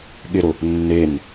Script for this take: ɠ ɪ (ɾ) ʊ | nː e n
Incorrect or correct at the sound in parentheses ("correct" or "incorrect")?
correct